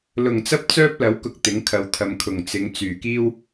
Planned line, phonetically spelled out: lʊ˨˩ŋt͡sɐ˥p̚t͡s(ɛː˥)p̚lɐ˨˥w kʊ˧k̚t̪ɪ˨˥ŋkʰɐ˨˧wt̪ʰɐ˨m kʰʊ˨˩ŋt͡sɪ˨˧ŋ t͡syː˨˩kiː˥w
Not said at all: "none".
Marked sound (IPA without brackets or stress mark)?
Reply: œː˥